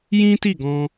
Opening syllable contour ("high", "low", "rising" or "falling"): high